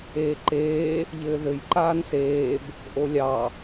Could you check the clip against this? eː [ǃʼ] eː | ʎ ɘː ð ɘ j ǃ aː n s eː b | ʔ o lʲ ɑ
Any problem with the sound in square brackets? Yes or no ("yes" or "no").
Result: yes